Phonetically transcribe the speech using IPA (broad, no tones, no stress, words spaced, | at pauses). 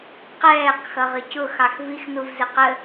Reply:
qɛːq xʌʁəcʊ xɑxvix nuvzɪqə